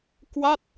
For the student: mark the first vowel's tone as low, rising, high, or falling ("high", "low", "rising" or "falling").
falling